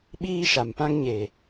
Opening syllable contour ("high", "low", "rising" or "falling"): high